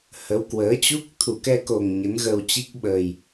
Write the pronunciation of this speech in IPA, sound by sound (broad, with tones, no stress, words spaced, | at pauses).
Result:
hə˨˦wkwəː˨˦t͡ɕu˦˥k̚ t̪ʰu˧˩kɛ˧ko˨˩ŋ ɲə˨˦nɣə˧wt͡ɕi˦˥k̚ ɓəː˨˩j